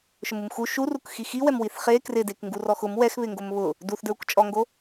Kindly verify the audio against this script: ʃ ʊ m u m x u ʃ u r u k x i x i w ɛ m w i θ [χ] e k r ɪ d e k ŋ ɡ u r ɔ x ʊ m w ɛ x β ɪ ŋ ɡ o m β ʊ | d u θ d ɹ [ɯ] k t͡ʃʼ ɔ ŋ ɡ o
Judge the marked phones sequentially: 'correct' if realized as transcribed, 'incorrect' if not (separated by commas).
correct, incorrect